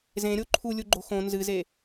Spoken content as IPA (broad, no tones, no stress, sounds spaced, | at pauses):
z ẽ ɾʲ o ǃʰ u lʲ u ɡ͡ǃ o̤ x õ n z ɨ z e